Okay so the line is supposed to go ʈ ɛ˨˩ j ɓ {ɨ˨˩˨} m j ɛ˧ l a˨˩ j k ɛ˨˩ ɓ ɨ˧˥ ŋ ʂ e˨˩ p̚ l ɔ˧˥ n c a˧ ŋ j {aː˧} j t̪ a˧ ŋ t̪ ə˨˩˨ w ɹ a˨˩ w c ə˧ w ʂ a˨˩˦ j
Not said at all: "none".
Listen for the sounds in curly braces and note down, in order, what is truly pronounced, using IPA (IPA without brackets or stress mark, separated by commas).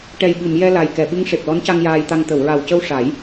ɨ˨˩˨, aː˧